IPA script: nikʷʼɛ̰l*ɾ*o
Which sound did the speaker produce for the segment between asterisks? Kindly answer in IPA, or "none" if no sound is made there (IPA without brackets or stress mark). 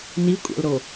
ɾ